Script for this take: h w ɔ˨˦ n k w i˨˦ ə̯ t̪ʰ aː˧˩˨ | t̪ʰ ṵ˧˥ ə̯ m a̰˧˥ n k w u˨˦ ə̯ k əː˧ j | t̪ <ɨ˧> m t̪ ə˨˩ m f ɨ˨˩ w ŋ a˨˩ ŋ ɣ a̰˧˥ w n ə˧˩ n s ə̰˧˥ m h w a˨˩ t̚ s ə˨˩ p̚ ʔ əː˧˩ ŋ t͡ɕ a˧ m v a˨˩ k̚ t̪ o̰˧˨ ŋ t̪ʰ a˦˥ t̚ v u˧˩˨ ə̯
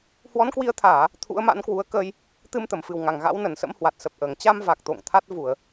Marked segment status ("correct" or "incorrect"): correct